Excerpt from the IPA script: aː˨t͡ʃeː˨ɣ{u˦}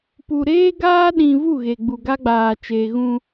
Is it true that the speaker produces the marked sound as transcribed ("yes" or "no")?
no